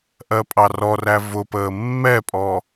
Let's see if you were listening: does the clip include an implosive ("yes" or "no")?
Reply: no